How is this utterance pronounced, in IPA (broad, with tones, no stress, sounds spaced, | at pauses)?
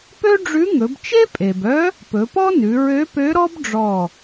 p ø˥ ɖ͡ʐ ʉ˧˥ ŋ ɵ˩˧ b t͡ʃ e˥ pʼ e˩ b œ˧˥ | p ɵ˩˧ p ɔ˥ n ʉ˩˧ ɹ ø˧˥ p ø˧˥ ɾ ɔ˥ b ɖ͡ʐ ɔ˧˩